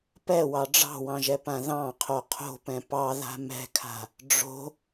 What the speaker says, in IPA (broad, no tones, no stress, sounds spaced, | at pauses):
p ɛ w ɑ ɖ͡ʐ ɑ̤ w ɑ̃ ʒ ɛ p ã ð ɑ̃ qʰ o qʰ o̤ p ɛ̃ p ɑ ð a̤ m ɛ̤ kʰ a̤ | ɖ͡ʐ o̤